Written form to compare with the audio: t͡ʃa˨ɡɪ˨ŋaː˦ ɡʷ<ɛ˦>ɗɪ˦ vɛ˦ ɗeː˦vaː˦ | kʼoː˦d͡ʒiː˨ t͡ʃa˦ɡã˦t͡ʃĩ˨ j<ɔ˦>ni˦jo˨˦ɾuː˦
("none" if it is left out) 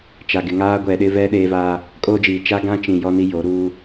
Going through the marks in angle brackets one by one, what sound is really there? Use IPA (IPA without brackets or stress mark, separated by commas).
ɛ˨, ɔ˦